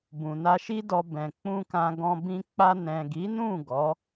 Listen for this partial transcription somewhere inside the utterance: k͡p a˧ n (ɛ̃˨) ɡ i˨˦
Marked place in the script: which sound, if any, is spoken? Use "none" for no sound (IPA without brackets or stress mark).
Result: ɛ̃˨